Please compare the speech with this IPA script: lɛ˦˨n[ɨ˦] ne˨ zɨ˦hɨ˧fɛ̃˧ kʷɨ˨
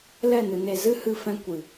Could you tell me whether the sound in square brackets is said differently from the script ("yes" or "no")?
yes